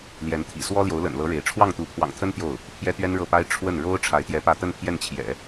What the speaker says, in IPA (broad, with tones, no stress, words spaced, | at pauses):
ljɛ˧˥nt̪ʰḭ˨˩ swɔ˥ljo˧˥ʊ̯lə̰˨˩nlɤ˧˥ ɻe˧˥ɪ̯ ʈ͡ʂʰwɑ˥˩ŋt̪u˧˥pʰwɑ̰˨˩ŋt̪ʰə˥n t̪jo˥˩ʊ̯ | pʰjɛ˥t̪ɥɛ˥nɻɤ˥˩pa˥ɪ̯ ʈ͡ʂʰwə˥˩nɻo˥ʊ̯ ʈ͡ʂʰa˧˥ɪ̯t̪jɛ˧˥ pä˥˧ t̪ə˥˧npʰjɛ˥˩nt͡ɕʰjɛ̰˨˩˦